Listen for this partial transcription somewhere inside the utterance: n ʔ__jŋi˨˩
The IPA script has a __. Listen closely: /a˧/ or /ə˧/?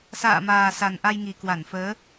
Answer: a˧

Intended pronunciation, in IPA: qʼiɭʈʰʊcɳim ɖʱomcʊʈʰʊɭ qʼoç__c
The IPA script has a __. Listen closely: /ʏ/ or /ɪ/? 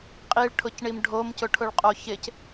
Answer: ɪ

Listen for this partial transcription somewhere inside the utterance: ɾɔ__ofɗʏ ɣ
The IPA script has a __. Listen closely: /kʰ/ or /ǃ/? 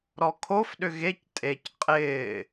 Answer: kʰ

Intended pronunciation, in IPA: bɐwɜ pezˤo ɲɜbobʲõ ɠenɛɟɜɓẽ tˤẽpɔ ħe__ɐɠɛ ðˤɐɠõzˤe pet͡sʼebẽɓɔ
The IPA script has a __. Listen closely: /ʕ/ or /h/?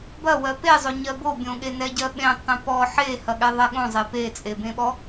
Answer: h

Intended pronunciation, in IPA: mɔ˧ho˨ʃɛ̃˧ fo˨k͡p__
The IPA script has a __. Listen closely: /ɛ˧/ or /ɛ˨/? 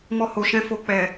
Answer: ɛ˨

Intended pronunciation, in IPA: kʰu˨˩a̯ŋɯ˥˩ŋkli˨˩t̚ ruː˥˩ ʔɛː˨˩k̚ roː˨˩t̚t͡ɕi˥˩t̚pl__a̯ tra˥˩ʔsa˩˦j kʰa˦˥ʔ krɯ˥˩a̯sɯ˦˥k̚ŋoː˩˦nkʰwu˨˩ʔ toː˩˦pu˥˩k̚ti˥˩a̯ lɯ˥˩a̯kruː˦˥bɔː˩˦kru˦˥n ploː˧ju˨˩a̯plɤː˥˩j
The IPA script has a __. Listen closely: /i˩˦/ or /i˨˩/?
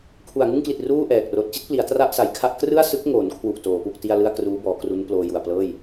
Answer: i˩˦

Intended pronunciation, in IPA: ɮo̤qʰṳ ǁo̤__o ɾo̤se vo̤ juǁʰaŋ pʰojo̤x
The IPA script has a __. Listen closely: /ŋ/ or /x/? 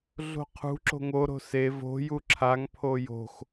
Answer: ŋ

